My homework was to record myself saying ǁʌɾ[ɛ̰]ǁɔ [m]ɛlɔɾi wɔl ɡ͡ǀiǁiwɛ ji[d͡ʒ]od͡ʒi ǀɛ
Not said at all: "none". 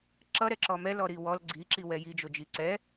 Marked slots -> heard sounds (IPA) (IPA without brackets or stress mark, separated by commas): ɛ, m, d͡ʒ